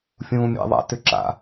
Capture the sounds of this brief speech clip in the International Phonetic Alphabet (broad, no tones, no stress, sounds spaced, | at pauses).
fʲ ũː mʲ ɛ̰ ðˤ a̰ t ʏ ǁ a̰